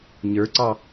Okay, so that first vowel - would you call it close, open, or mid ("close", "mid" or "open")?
mid